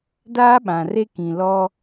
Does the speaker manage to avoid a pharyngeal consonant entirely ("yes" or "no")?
yes